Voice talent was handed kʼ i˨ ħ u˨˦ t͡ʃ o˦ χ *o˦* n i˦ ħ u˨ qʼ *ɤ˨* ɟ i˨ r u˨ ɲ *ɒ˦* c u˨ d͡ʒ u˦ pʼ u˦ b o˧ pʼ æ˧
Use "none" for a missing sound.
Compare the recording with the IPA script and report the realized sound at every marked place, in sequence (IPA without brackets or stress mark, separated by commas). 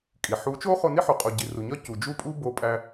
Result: o˧, o˨, ɒ˦